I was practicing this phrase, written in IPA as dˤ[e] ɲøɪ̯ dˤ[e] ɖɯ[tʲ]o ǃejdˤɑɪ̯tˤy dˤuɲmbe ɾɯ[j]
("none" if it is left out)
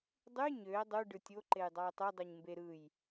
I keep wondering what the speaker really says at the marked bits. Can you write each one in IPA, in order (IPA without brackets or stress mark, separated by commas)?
y, y, tʲ, j